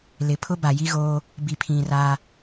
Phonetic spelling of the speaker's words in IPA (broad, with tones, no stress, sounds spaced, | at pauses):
l ɪ˨ pʰ ʊ˦ b a˨ j i˦ ɣ oː˦ | b i˨ pʰ ĩ˨ r a˦